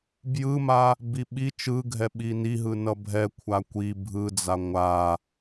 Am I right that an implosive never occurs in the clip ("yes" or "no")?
no